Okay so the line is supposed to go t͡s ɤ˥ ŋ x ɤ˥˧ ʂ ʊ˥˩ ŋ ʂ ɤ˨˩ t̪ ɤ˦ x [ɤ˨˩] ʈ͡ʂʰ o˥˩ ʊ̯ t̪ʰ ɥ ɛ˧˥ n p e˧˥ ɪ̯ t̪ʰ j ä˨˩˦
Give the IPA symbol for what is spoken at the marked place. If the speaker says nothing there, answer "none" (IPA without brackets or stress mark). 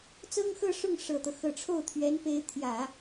ɤ˨˩